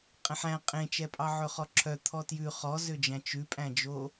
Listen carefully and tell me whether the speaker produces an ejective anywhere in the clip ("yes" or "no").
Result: yes